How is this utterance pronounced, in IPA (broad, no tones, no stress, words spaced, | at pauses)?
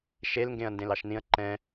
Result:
ʃelŋɡẽɐ̯ ndẽlɑʃnĩɐ̯ ǃɛ̃